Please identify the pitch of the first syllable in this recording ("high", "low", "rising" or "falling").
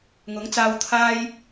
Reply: rising